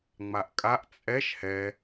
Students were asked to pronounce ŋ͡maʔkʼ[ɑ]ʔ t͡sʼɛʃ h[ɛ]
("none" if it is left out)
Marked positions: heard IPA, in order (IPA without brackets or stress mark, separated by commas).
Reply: a, ɛ